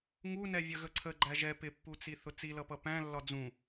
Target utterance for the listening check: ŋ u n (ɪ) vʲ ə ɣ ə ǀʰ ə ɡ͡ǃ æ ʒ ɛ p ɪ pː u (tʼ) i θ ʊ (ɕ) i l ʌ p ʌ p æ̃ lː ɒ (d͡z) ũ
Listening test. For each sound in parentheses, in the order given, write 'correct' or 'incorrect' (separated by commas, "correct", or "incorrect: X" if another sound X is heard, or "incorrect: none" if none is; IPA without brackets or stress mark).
incorrect: ɛ, incorrect: t͡s, incorrect: t͡s, correct